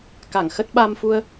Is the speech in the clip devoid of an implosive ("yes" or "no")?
no